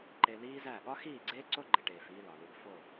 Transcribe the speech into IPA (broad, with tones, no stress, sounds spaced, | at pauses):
ǃ e˧ l iː˦ z æ˦˨ ɠ ɒ˦ x iː˦˨ ɡ͡ǀ eː˦ ǀ o˦ ɡ͡ǃ e˨ ʈ eː˨ f iː˧ l ɒ˨ l u˧ ɡ f o˦˨